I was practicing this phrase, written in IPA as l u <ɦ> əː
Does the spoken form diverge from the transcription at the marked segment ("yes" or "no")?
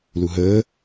no